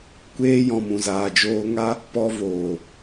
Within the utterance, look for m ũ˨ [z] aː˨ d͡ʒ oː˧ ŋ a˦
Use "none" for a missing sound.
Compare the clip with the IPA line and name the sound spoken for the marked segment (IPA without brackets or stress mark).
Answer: z